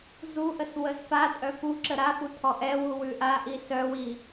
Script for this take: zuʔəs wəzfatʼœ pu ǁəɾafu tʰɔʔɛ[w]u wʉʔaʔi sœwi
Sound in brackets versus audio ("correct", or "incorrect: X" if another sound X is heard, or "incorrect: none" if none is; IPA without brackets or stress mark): correct